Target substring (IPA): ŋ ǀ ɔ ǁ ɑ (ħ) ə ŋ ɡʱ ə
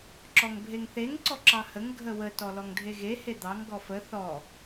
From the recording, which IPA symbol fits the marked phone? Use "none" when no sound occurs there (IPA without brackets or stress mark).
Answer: h